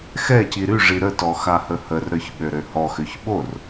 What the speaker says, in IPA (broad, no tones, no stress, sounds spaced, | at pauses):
x ɛ c i ɾ y ʐ i ɾ ə t ɔ x a h ə h ə r ɾ œ ç ɓ ø ɾ ø h ɔ x ø ç ɓ o r